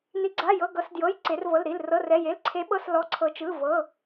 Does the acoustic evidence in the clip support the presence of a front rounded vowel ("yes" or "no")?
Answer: no